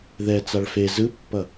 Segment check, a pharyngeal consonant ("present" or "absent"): absent